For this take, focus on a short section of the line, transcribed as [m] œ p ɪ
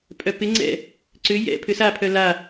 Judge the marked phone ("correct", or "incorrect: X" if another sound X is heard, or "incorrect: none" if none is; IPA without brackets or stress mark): incorrect: pʼ